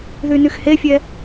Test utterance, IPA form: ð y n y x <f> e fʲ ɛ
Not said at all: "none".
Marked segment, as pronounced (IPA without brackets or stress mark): h